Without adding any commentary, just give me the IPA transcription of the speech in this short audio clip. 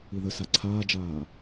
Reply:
i ð ə s a ǀʰ aː d͡ʒ aː

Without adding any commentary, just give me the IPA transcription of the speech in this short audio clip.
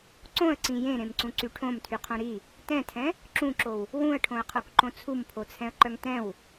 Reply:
ǀ õ ə̯ ǀ ĩ j ẽ ɾ ẽ m ǀ ũ ǀ y ʈʰ õ m tʰ y qʰ õ ɾ i | t ɛ̃ tʰ ɛ̃ | ǁ ũ ǁ o w | w ũ ə̯ ʈʰ õ ə̯ qʰ o k ǃ õ t͡sʰ u m pʰ o t͡sʰ ɛ̃ ə̯ ǃ œ ŋ t ɛ̃ w

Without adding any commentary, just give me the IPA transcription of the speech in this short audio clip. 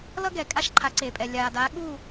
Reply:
l ʌ˥ ɡ ɛː˩ kʼ a˥ ʃ ǃʰ a˩˥ ǀ eː˩ pʼ ɛ˩ lʲ aː˩ d aː˩˥ ɠ u˥˩

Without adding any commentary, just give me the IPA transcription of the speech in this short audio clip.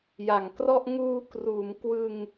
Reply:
j a˨˩ ŋ k r ɔ˥˩ ʔ ŋ uː˧ k r uː˩˦ m k w ɯ˧ ŋ

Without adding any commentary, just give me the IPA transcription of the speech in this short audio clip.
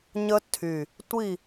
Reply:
ɲ ə˦˥ tʰ y˨˩ | tʷ i˦˨

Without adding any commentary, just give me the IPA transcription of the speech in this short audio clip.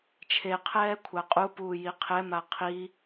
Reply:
t͡ʃʰ e qʰ ɛː kʷʰ a qʼ u p uː j i qʰ ɛ m a qʰ i

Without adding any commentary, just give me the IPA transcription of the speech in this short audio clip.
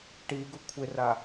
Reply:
ʈ i ɡ ʊ kʷʰ ɪ r a

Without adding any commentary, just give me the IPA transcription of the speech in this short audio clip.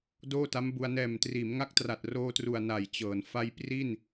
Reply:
d oː˥˩ t a˦˥ m b u˧ a̯ n ɛː˨˩ m t r iː˩˦ m ŋ a˦˥ k̚ t r a˨˩ t̚ r oː˧ t r u˨˩ a̯ n a˨˩ j t͡ɕ ɤː˩˦ n f a˧ j p r i˥˩ n

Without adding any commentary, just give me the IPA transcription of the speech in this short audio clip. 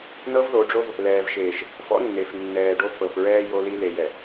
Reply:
n ɤ˦ v ð o˨˦ ɖ͡ʐ o˦ v | l ɛː˨ v ʃ eː˨ ʃ | f ɔ̰˦ nː e˨ f nː ɛː˨ ɖ o˦ f ɤ˨ f ɹ ɛː˦ j o˦ l i˦ l e˨ j ɛ˨

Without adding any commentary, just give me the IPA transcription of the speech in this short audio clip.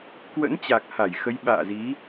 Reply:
k w ə̰˧˥ n t͡ɕ a˨˩ k̚ h a˧˩ j x ə˨˦ j ɓ a̰ː˧˨ z i˨˦

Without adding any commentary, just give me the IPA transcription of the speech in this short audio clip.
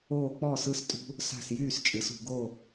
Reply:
oː˥˨ k͡p ɔː˥˨ s ɯ˥˨ s tʼ ṳ˥ | s a̤˥˨ s j yː˥˨ s t͡ʃʼ ɨ˩˥ s ṳ˩˧ ɡ o˥˨

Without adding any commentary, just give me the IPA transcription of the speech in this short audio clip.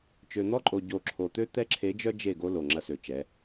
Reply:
t͡ʃ ø˨ n̪ ɔ˦ ǃʼ o˨ ɟ o˨ ǁʰ o˨ t̪ ø˦ t̪ ɛ˦ ǁʰ e˨˦ d͡ʒ œ˦ d͡ʒ e˦˨ ɡ o˦ l o˨ ŋ͡ǁ ɐ˦ s ø˨ t͡ʃ ɛ˨˦

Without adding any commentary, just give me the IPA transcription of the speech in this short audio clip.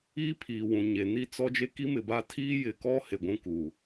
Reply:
iː˦ pʰ iː˨ w ũ˨ ɲ e˨ n i˦ t͡s ɔ˦ d͡ʒ e˦ k i˦ m ɪ˨ b a˦˨ tʰ iː˦ j ɪ˨ k ɔ˦ h e˨ ɡʷ ũ˦ k uː˨

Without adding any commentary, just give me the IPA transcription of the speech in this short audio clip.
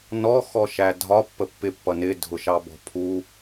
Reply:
n ɔ x ɔ ʃ æ dʱ ɒ pː ə pː ɪ pː ʌ n ɪ dʱ ʊ ʃ ɑ b ɔ̤ pʰ u

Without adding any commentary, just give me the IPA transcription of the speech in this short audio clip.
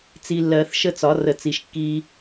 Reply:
t͡s i˨ lː ɜ˨˩˦ θ ʃ ə˦ t͡s ɒ˩˥ r ə˨ t͡s i˨ ʃ kː i˦

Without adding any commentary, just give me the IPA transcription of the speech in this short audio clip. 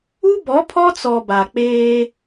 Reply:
u˦ b ɔ˨˦ pʰ ɔ˦ t͡s ɔ˨ b a˨ k͡p eː˦

